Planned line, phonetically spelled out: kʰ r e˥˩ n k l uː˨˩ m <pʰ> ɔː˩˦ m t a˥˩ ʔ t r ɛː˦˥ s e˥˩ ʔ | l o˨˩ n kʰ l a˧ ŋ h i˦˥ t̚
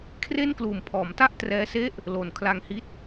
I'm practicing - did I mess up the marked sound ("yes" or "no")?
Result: no